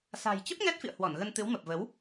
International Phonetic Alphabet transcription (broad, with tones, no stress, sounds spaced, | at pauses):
s a̤˨˩ j t͡ɕ ə˦˥ p̚ ŋ ɛ˦˥ t̚ f ḭ˧˨ ə̯ h w ɔ˧˩ n ɣ ə˧ n t̪ ɨ˨˦ w m ə˨˩ p̚ v ə˨˦ w